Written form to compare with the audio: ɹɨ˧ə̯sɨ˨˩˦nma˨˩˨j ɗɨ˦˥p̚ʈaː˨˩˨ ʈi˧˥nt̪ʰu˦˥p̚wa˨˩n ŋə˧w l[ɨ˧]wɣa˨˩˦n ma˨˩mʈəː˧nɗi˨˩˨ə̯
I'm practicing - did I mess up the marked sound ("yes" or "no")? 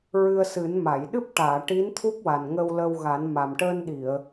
yes